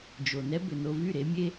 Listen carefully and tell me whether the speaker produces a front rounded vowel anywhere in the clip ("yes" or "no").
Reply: yes